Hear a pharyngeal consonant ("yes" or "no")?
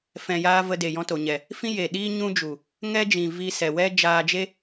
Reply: no